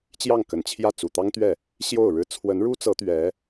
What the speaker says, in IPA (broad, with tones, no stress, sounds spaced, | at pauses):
t͡ɕ j ɑ˥˩ ŋ k ə˨˩ n t͡ɕʰ j ä˥˩ t͡s u˨˩ t̪ ɑ˥ ŋ t̪ ɥ ɛ˥˩ | ɕ j o˥˩ ʊ̯ ɻ ɻ̩˥ t͡sʰ w ə˧˥ n ɻ u˥ t͡s ɤ˧˥ t̪ ɥ ɛ˧˥